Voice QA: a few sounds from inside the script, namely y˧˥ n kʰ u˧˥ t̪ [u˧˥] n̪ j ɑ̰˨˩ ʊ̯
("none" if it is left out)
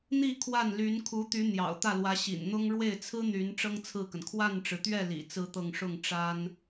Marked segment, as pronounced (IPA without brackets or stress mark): y˧˥